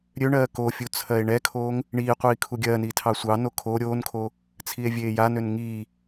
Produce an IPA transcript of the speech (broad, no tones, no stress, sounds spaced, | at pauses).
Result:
ɾʲ ø ɳ ɜː k o fʲ u t͡sʰ ɜ e̯ ɳ ɛ kʰ oː ŋ | ɳ iː qʷ iː kʰ u ɡʲ ɜː n iː tʰ ɑ sʷ ɑ n o kʰ o ɾʲ oː n kʰ o | t͡sʰ i e̯ vʲ eː j a n ø n ŋ iː